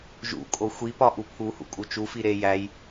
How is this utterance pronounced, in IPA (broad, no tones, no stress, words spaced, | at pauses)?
ʒṵkʼo xʷipɒ ʔupʰuhṵ kʼut͡ʃufi ɾe jæj